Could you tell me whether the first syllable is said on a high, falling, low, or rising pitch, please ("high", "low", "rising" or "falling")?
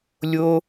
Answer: high